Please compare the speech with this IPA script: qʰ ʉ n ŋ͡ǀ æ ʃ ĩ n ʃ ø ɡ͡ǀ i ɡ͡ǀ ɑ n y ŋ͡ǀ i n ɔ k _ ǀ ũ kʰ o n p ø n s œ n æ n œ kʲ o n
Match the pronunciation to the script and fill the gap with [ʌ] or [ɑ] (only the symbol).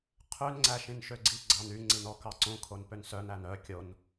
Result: ɑ